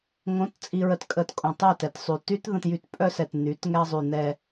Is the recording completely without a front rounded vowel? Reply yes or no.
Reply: no